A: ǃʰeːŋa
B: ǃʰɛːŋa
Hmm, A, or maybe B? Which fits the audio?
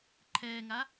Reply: B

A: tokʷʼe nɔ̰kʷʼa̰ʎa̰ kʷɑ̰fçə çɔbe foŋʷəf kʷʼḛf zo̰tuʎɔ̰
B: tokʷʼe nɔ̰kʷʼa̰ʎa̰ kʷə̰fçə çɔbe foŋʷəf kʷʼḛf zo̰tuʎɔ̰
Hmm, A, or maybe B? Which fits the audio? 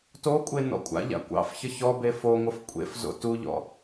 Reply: A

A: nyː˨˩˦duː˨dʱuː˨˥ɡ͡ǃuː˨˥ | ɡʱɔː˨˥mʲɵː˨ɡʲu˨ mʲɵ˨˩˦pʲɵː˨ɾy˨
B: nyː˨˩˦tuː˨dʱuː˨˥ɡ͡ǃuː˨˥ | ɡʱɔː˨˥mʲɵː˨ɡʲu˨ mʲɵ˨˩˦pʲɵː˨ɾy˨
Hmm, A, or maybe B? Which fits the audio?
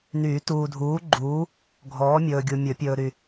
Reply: B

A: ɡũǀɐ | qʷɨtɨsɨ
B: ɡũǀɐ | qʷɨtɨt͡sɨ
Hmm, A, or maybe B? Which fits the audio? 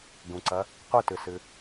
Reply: A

